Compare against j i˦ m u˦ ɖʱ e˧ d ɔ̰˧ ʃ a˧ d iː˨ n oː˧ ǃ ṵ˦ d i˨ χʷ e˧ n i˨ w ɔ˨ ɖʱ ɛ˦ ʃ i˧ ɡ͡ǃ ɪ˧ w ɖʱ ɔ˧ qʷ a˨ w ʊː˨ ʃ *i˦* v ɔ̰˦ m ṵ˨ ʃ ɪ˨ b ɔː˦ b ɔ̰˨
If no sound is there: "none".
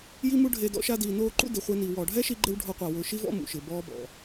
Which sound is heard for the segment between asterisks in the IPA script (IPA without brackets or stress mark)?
i˦